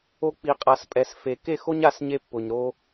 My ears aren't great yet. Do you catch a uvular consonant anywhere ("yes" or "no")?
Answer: yes